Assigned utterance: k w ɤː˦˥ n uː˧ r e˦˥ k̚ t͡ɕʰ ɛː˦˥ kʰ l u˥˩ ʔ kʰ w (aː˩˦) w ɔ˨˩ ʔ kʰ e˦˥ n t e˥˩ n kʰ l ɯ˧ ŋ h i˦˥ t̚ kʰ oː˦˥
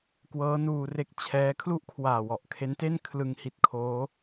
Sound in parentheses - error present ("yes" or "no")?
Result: yes